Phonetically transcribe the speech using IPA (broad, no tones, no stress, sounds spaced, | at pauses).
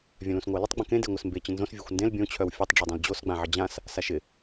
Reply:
vʲ œ̃ l ũ s ŋʷ ɜ l ə tˤ ɡ͡b ə̃ k ẽ d e ŋʷ ɪ s m b e t͡ɕ ə̃ n z õ s vʲ ɜ xʷ n d ẽ l bʲ õ t͡ɕʰ œ w fʲ ø tˤ ɖ͡ʐ o dˤ œ̃ l d͡ʑ o s ɡ͡b ã ʕ ɪ d͡ʑ ã s | s a ʃ ɪ